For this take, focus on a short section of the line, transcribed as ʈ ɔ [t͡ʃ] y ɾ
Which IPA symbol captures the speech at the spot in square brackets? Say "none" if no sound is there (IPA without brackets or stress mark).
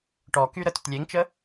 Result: k